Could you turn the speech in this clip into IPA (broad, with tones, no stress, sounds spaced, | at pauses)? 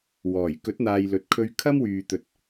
w ɔː˨˩ j k ɵ˨˥ t̚ n̪ aː˨ j l ɵ˨ t̚ kʰ ɵ˧ ɥ kʰ ɐ˥ m w yː˨ t̪ ɵ˨ t̚